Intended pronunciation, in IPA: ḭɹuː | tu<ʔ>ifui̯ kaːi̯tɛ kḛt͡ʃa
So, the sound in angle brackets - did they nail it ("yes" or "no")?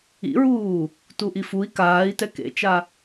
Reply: yes